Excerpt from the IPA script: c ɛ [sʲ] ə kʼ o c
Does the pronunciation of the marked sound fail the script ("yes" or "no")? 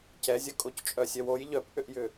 yes